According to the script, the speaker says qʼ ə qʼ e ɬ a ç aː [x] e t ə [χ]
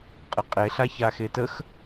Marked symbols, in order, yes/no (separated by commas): yes, no